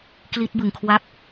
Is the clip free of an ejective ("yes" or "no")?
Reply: yes